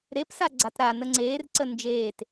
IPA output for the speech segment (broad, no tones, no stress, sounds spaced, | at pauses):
ɾ e p s a ɡ͡ǀ a t ɾ a n ə ŋ͡ǀ eː r ǀ ə n d͡ʒ eː t